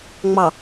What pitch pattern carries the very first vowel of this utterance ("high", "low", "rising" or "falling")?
low